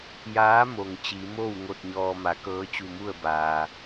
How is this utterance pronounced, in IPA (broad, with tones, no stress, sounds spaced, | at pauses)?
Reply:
j aː˧˥ m o˩ ŋ t͡ɕ i˩˧ m o˥˨ w ŋ o˥˨ t̚ ɲ ɔː˧ m a˩˧ k ɤː˧˥ t͡ɕ u˧˩ m u˥˨ ə̯ b aː˩